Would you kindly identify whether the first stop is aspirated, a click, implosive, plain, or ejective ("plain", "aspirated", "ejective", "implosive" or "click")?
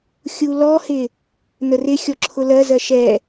click